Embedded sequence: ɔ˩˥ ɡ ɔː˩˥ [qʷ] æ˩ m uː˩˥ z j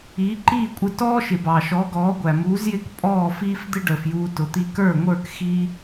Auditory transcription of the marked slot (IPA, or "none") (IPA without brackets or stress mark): ɡʷ